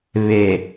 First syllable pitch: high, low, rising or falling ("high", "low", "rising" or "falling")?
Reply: low